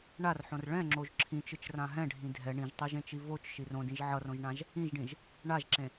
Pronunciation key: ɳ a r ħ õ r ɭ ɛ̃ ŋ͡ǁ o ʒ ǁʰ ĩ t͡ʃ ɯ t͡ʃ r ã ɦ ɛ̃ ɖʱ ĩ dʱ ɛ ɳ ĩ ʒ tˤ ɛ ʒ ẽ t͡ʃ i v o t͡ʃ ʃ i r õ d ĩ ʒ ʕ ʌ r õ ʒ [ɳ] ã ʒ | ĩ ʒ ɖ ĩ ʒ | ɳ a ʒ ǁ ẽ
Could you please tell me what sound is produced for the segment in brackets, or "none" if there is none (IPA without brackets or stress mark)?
ɳ